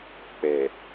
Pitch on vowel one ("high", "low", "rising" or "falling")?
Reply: low